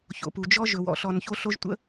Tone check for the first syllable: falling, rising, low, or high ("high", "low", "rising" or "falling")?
low